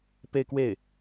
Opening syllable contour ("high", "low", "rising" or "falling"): falling